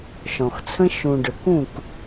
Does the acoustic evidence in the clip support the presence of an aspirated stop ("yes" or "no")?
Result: yes